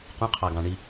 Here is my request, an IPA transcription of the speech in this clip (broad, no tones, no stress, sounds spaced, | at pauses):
q ũ qʰ ɑ ɡ ɑ̃ ɳ i